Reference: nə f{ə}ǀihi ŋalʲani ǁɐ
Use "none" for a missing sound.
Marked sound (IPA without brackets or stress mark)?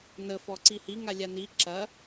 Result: ɔ